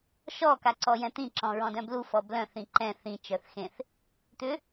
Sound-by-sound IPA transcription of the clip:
ʃ ɔ k a ǀ ɔ j ɛ̃ t̪ ĩ ǁ ɔ̃ ɹ ɔ̃ d œ̃ b l u f ɔ b l œ̃ θ ĩ ǃ ɛ̃ θ ĩ t͡ʃ œ θ x ẽ θ | t̪ ʏ

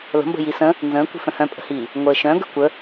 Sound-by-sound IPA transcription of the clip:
l ə̤ m b ə̤ j i s ə̃ | n z ə̃ː kʷ i̤ f œ̃ h œ̃ pʼ ə̤ h iː | ŋʷ əː ʃ œ̃ ɡ ə̤ kʷ ə

